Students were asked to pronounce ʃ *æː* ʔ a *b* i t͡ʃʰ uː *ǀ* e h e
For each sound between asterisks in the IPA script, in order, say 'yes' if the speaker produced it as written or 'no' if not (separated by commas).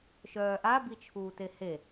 no, yes, no